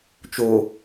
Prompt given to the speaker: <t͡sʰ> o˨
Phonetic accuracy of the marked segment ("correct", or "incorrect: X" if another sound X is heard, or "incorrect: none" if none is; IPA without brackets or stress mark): incorrect: t͡ʃ